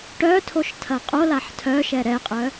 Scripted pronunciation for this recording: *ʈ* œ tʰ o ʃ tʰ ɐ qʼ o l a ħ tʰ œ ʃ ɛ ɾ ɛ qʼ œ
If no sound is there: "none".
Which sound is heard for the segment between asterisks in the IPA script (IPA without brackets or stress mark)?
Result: ʈ